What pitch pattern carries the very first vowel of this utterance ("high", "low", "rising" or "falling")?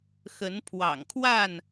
rising